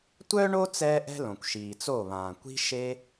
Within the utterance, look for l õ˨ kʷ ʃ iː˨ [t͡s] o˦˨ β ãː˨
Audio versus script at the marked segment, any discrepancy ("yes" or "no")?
no